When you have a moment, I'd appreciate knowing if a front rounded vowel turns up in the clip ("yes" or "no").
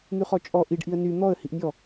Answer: yes